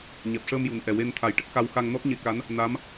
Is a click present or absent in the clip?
absent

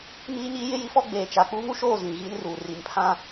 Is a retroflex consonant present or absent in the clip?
absent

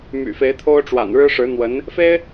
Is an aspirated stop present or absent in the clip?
present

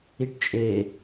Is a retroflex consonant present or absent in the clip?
present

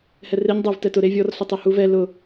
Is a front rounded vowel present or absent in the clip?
absent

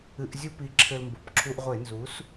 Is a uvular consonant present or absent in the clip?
present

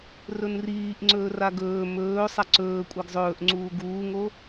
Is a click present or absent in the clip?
present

